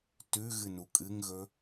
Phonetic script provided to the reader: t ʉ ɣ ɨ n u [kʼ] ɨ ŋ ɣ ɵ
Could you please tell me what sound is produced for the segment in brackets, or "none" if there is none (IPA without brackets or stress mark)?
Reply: kʼ